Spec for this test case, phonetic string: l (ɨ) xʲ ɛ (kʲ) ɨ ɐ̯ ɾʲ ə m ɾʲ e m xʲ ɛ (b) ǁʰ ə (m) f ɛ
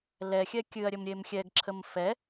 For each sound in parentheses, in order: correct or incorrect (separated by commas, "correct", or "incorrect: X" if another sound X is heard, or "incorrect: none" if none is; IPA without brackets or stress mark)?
incorrect: ɛ, correct, incorrect: ɡ, correct